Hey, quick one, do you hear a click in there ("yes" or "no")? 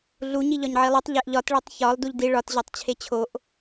no